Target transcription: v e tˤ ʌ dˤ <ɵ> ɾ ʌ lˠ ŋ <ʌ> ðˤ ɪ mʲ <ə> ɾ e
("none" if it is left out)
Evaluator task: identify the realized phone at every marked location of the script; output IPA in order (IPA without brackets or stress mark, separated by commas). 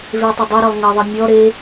ɵ, ʌ, ɔ